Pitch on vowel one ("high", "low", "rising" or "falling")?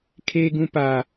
high